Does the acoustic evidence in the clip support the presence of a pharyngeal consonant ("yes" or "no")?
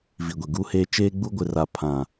no